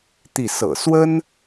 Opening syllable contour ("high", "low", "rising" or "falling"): falling